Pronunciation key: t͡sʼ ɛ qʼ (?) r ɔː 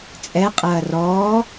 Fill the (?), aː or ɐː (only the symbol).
ɐː